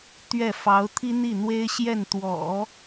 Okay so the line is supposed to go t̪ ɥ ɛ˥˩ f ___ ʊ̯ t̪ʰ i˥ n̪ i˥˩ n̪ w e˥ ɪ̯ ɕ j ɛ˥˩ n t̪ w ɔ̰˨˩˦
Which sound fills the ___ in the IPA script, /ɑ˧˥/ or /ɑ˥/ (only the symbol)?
ɑ˧˥